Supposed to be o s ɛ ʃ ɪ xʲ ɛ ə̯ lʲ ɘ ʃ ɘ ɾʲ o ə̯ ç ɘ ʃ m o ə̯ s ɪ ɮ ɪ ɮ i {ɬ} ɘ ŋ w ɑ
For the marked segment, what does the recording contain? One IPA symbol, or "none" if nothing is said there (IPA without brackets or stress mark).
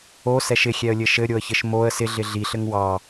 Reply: ɬ